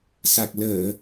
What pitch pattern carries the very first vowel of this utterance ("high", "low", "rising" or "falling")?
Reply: low